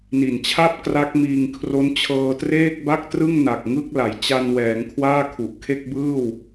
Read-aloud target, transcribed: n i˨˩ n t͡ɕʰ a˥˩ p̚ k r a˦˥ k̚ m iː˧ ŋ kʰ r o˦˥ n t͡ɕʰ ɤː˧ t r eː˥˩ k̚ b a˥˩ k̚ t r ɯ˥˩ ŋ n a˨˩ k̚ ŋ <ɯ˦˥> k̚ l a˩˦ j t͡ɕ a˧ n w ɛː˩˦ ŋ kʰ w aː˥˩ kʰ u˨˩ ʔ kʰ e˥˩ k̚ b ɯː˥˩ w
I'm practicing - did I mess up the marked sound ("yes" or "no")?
yes